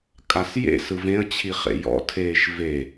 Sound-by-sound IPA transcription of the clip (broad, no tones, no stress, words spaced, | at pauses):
kʼasjḛ sɯvẽə̯ t͡ɕʰiχḛjɔ̰tʰeːʃ ve